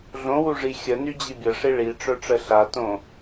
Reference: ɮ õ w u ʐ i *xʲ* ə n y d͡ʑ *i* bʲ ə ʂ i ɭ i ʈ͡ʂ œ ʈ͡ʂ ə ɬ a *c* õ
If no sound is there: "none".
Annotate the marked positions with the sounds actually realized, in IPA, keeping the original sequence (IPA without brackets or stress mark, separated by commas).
xʲ, i, t